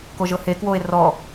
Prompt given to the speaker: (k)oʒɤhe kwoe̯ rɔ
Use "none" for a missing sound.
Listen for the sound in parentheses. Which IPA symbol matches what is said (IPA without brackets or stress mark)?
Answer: k